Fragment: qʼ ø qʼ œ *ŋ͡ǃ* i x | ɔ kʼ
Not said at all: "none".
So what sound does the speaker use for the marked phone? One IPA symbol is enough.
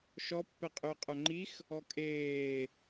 ŋ͡ǃ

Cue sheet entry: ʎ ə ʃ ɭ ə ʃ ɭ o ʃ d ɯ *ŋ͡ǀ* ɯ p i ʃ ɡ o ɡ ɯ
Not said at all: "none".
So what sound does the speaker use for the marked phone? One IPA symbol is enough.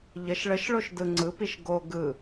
ŋ͡ǀ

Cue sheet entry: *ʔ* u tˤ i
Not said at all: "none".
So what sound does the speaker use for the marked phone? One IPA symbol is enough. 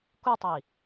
k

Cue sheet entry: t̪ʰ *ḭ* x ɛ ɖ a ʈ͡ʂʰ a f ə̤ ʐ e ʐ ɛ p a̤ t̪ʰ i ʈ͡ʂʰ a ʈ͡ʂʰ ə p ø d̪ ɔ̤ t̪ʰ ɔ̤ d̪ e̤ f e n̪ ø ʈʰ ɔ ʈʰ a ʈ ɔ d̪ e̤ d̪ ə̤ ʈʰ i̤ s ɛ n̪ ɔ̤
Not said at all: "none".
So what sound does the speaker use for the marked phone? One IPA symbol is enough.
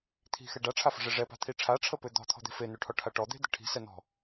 i̤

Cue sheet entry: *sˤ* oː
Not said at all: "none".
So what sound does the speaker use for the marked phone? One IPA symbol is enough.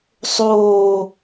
sˤ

